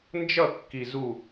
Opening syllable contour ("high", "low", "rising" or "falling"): falling